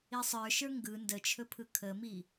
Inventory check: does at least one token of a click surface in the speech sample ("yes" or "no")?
no